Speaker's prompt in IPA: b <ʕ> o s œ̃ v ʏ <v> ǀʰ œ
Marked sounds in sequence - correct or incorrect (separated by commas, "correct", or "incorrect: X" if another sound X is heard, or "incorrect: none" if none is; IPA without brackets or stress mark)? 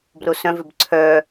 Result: incorrect: r, incorrect: b